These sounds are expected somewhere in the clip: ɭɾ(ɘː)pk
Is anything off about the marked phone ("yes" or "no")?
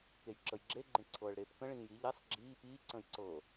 yes